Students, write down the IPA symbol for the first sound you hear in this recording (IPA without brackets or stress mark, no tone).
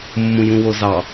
mː